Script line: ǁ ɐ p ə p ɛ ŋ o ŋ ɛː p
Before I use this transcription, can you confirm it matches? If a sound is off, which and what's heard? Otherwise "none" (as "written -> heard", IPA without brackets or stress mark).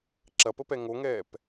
none